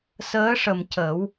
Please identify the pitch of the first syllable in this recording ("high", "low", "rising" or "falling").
rising